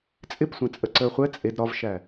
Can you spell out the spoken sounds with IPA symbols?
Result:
t͡sʼɪpsʷɛ̃ t͡sʼəǀəːχʷɛ t͡sʼed ɾɒvʃæ

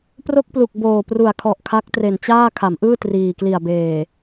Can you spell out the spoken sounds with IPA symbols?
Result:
pro˥˩k̚plu˨˩k̚ boː˨˩pru˨˩a̯ kʰɔ˨˩ʔkʰa˦˥k̚ tre˨˩nt͡ɕaː˥˩ kʰa˩˦mʔɯː˥˩ triː˨˩ kli˨˩a̯beː˨˩

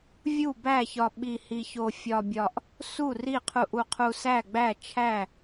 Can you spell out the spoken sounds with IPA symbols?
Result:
vʲu˥˨bæ˥˨çɒ˧ ɓi˧ hi˧ço˧ fʲɒ˧bʲɒ˧ʔ | su˥˨ri˥˨qʰu˧ʔu˧ qʰu˧sæ˥˨ɡ͡bæ˥˨ t͡ʃʰæ˥˨

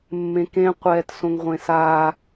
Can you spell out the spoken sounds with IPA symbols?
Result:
mːẽkẽ qʷɛːtsõŋʁʷẽsa

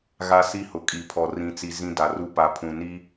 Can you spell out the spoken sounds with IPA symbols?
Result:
ɣa˦si˦hʊ˨ kʼi˨pʰɔ˨ rĩ˨t͡si˨ zĩ˦da˨ru˦ pa˨pʰũ˨ni˦

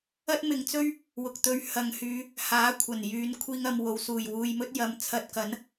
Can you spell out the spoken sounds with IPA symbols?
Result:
ɐ˥t̚mɪ˨ŋt͡sɵ˥ɥ | wʊ˨k̚t̪ɵ˧ɥ hɐ˨ŋhyː˨˧ | haː˨˥kʷʰɐ˨˩njyː˨˧n kʷʰiː˧ŋɐ˨mwo˨wsuː˨˩j wuː˧jmɵ˥t̚ jɐ˨˧mt͡sʰɐ˧t̚kɐ˨˥n

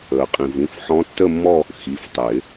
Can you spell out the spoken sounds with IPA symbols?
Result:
əː˩qʼĩ˩ vĩ˩˧˩fħɔ̃˧˥tːə˥˧mːɔ˥˧ | xi˩˧˩ftˤɪː˨˩˦

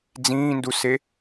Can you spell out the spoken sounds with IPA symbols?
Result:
d͡zĩːnduse

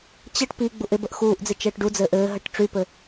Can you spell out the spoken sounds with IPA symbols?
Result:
t͡ɕəʈ piɡ͡buʔ ɪbəʔ xuːʔd͡zɪ t͡ʃəːʈɖud͡zɘːʔ ɘːɦəʈ ʈ͡ʂypɘ

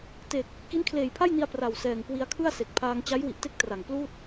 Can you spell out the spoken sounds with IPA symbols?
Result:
te˨˩k̚ | ki˦˥nkʰleː˨˩jpʰa˥˩jni˧a̯ pra˨˩wsɛː˨˩ŋkwi˧a̯kʰɯ˥˩a̯ se˨˩k̚pʰaː˧ŋ t͡ɕa˦˥jwi˨˩ʔte˦˥k̚ tra˨˩ŋpluː˥˩t̚

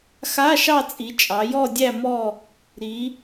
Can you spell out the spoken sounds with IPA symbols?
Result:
xa˧˥˧ʃɑ˦˨t͡sʼi˩˧t͡ʃʼɑ˩˧ jɔ˦˨dʲæ˦˨mɔ˦˨ | ɾi˩˧

